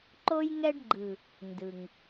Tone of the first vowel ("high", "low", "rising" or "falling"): high